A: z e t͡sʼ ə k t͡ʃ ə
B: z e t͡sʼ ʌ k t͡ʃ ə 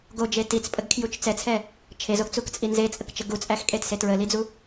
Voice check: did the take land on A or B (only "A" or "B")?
A